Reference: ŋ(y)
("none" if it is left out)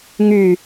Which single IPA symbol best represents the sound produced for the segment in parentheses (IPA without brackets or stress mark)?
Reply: y